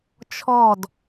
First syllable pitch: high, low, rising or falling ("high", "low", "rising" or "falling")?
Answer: falling